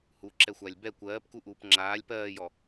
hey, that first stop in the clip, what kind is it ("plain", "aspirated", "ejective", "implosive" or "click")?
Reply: click